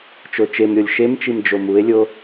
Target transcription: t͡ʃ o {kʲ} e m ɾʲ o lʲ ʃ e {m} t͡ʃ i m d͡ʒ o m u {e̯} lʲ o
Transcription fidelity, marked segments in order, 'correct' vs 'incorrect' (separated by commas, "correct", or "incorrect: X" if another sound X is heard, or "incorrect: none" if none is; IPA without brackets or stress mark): incorrect: t͡ʃ, correct, correct